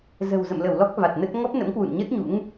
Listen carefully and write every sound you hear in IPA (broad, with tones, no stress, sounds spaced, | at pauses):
z ə̤˨˩ w z ə̰˧˨ m l ə˧˩ w l ɔ˦˥ k̚ v a˨˩ t̚ n ə˦˥ t̚ ŋ ɔ˦˥ p̚ n ə̰˧˥ m k w ṵ˧˨ n ɲ ə˦˥ t̚ ɲ ṵ˧˥ ŋ